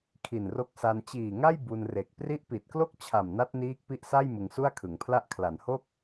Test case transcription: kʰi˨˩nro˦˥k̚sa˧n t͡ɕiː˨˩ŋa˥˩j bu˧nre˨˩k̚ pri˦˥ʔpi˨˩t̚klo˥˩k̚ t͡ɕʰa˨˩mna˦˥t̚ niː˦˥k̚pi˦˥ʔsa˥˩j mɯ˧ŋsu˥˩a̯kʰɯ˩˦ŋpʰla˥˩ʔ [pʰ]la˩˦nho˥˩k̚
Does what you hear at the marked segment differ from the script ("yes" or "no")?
yes